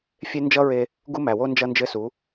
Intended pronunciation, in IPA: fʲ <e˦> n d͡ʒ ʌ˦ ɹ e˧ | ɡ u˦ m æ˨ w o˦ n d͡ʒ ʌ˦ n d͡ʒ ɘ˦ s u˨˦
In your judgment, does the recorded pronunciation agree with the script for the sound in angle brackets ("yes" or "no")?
yes